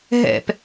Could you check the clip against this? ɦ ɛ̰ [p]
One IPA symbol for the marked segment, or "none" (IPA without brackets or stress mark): p